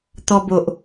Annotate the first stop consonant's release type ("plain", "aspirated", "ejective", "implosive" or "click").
plain